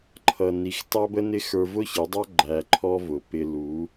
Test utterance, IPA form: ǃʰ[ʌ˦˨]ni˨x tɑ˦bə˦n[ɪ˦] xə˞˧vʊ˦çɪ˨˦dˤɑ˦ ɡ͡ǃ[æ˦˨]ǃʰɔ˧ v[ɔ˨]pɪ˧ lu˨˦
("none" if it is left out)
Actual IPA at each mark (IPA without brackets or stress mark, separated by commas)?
ʌ˨, ɪ˦, æ˨, ʊ˨